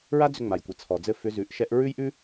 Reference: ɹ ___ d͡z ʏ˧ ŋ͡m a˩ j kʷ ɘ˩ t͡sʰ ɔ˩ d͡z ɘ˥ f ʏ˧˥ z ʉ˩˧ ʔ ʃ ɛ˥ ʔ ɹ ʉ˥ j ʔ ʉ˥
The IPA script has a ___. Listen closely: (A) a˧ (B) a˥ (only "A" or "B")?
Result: B